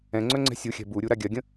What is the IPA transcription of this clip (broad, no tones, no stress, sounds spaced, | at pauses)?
ɛ̃ ŋ͡ǀ œ ŋ͡ǀ ɛ̤ sʲ u xʲ ɛ̤ b u ɾʲ u ɾ a ɡʲ ɜ ɡʲ ə̃